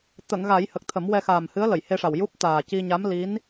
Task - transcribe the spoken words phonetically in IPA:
t̪ ə˨˩˨ ŋ ɣ a˨˩˦ j h ə˨˩ k̚ t̪ʰ ə˨˩˦ m w ɛ˧ x aː˨˩ m h ɨ˧˥ ə̯ l ə˨˩˨ j h e˧ ʂ a˨˩ w j u˦˥ p̚ t̪ aː˨˩ c i˧ ɲ a˧˥ m l i˧˥ n

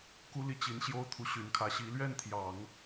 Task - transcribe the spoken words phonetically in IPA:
k u˥ l i˥˩ t͡ɕ i˧˥ n ɕ j o˥ ʊ̯ t̪ʰ u˧˥ ɕ y˨˩ n kʰ ä˧˥ ɕ i˧˥ l ɥ ɛ˥˩ n t̪ʰ j ɑ˨˩˦ ŋ

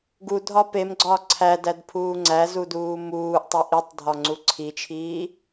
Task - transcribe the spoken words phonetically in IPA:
ɡ u dʱ ɒ p e m ɡ͡ǀ ɒː ǀʰ æ d æ d pʰ uː ŋ͡ǀ æ z u d uː m uː ʔ tˤ e ʔ i tˤ dʱ ɒ ŋ͡ǀ u ǀʰ i t͡ʃʰ iː

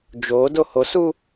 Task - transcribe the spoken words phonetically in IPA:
d͡ʒ o d o h o s u

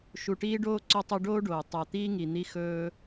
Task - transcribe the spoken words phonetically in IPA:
ʃ u˨ ʈ iː˦ ɖ oː˦ ǀ o˦ tˤ o˦ ɖ oː˦ ɖ oː˩ tˤ a˨ t̪ iː˥ ŋ i˩ n̪ i˦ x ɵː˦

